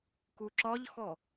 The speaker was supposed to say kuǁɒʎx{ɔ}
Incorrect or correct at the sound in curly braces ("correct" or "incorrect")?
correct